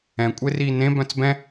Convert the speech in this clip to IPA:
ɛ̃ kʷʼ e r iː n ẽ b œ̃ t͡s b ɛ̃

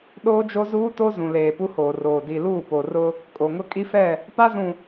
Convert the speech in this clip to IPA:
ɗ oː˦ d͡ʒ o˦ z uː˦ t o˦ z ũ˨ l eː˨ p u˦ h oː˨ r oː˨ d i˨ l uː˦˨ p o˨ r ʊ˦ | kʼ o˨ ŋ ʊ˦ kʼ i˦ f ɛ˦˨ | p a˦ z ũ˨

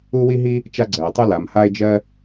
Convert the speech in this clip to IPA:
u˥ w i˥ ɦ i˥ | t͡ʃ a˥ ɡ͡ǀ ɜ˩ e̯ tˤ u˥ l a˩ m h a˥ e̯ d͡ʒ ɜ˥

